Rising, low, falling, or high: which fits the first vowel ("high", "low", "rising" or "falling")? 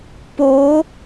rising